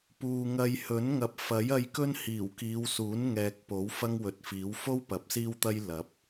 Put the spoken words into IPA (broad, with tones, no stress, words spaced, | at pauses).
puː˨ŋɐ˧j hɵ˨˥n ŋɐ˨p̚fɐ˨˥j ɐ˧jkɵ˥n hiː˨˩wkiː˨˧wsuː˨˥nŋɛː˨k̚ po˨˥w fɐ˥ŋwɵ˨t̚fiː˨˥w fo˥w pɐ˨˥p̚siː˥wt̪ɐ˥j lɐ˨˥p̚